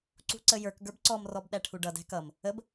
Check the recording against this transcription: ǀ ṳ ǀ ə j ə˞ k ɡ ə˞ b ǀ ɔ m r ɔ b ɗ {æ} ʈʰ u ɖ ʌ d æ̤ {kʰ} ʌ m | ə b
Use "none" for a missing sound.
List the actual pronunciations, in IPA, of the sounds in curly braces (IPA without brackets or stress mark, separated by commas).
æ, k